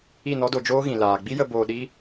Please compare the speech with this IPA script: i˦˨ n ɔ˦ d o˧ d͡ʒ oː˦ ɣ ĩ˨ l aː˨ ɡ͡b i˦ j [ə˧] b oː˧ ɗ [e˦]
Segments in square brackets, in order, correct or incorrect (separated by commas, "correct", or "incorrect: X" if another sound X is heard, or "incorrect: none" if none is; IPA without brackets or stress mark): correct, incorrect: i˦